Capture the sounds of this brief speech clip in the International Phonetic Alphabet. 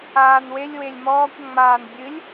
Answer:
aːnwelʲ welʲmɔːkʷ ŋ͡maːnbʲɨlʲ

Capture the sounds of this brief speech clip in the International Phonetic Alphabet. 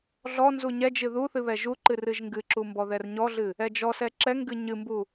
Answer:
ɮɔ nzuɲɛd͡ʒɨ ðuθɨ βɛʒuǃɨ rɨʒŋɡɨǁu mbɔðɛrɲɔɮɨ | ɛd͡ʒɔsɛ ǁɛŋɡɨ ɲɨmbu

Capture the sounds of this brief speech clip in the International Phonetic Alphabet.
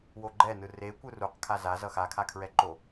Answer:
woɡ͡ǃɛnɯ rekʷɯ ruqkʰa zazʌ xakʰakʰɹɛǃo

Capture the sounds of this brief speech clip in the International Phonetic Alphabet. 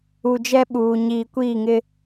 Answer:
u˨d͡ʒɛ˦ɓuː˨ ɲiː˨kʷiː˦˨ŋɪ˦

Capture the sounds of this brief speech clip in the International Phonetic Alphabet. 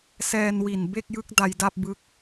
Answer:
sɛː˧nwi˨˩n be˥˩k̚jɯ˦˥k̚ da˧jda˥˩p̚bɯ˦˥k̚

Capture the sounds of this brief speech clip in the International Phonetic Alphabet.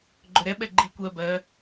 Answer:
ɡ͡ǃøɾɛɓɛ ɡ͡ǃi kʷɜ bɜ

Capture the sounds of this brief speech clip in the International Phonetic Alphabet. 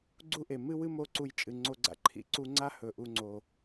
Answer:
ɡ͡ǀu˦ʔe˨ mɨ˦wɨ˦ mo˦˨ǀu˧jt͡ʃʼɨ˨ŋ͡ǀo˧ ɡ͡ǀa̰˧ǃʰḭ˧ ǀu˧ŋ͡ǀa˦ hɵ˨ʔu˧ŋ͡ǀo˨

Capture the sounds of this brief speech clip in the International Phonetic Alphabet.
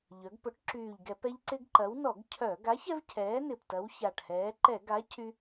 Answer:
ʎœ˩˧ɡpʊ˨˥ʈ ǁyː˨˩ʎɡɛ˧˩˧pɛ˦ʎ ǀɪ˦ɡǃɐ˨˥w nɔ˧˩˧ɡcʰœ˧˩˧ ɡa˨˥çɛ˦v cʰɛː˨˥nɪ˨˩p tɐ˨˥wça˨˩ʈ hɛː˩˧ǃɛ˧˩˧ɡa˨˥ cʰy˦

